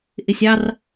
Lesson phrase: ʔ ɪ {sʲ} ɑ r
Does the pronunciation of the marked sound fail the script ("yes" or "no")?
no